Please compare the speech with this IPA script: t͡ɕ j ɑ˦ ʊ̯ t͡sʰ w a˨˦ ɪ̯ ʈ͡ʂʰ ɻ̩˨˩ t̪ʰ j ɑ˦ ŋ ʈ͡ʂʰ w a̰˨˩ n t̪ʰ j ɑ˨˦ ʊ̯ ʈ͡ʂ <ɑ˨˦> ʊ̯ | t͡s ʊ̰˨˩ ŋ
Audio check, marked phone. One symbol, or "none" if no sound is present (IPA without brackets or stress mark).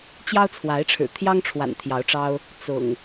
ɑ˦